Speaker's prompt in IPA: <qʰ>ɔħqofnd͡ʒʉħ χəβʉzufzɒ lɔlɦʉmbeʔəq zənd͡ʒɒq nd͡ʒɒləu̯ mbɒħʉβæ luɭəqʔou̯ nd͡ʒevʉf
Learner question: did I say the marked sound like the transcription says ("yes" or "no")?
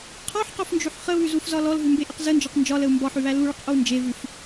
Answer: yes